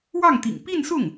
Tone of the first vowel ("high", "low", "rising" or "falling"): falling